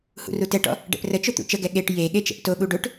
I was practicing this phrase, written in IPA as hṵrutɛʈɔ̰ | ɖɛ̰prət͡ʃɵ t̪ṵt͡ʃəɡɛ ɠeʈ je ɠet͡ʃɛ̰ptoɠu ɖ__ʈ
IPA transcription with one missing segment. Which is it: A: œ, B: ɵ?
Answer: B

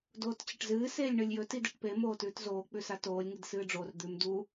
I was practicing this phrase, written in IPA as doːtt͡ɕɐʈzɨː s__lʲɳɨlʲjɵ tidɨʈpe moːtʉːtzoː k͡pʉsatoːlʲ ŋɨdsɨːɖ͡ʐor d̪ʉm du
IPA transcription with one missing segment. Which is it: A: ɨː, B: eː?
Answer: B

